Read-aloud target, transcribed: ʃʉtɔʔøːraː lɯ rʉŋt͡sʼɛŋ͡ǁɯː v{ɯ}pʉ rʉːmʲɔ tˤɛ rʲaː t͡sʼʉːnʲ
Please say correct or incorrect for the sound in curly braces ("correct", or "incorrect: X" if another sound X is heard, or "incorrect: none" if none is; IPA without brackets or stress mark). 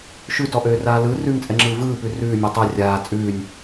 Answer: incorrect: ɯː